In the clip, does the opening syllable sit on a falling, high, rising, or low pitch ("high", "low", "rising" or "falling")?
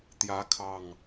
rising